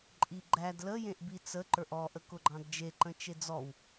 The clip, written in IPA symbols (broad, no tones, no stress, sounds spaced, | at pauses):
ǃʼ i ɡ͡ǃ æ d l ə j ẽ ʔ b i t͡s ə ǃ ə˞ ʔ ɔ ʔ ə k ʊ ɡ͡ǃ ɑ̃ d d͡ʒ e ǃ ə̃ t͡ʃ e d͡z ɔ w